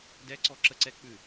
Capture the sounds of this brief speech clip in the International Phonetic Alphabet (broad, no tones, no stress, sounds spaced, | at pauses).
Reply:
d ɛ ǀ ɔ ǁ ə ǀ ɛ k͡p ʉ